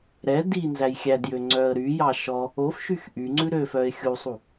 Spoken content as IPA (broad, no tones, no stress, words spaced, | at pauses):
ɾɛ di nzæjxʲædjø ŋ͡ǀœə̯ɾyjɑ ʃɔ | ofʃyx ʔyŋ͡ǀʉ ɾøfœɪ̯ xʲusˤu